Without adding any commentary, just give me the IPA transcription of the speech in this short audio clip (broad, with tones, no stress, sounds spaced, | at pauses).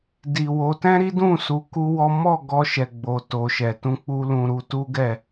d i˨ w o˨˦ t ɛ̃˦ ɾ i˦ d ũ˦˨ s u˧ k u˦ w ɔ˦ m ɔ˦˨ ɡ ɔ˧ ʃ ɛ˨ ɡ͡b o˨ t o˨ ʃ ɛ˨ t ũ˧ k͡p u˧ l ũ˧ ɾ u˧ t u˦ ɡ ɛ˦˨